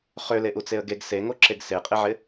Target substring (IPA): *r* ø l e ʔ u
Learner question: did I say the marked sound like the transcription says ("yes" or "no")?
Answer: no